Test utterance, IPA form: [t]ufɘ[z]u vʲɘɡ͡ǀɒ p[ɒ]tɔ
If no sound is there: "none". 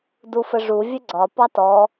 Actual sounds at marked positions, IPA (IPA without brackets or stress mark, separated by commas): d, ʐ, ɑ